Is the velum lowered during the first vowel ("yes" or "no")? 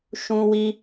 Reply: yes